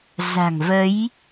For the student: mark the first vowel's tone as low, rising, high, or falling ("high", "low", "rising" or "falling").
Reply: low